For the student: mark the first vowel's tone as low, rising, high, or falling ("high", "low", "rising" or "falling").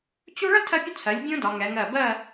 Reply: high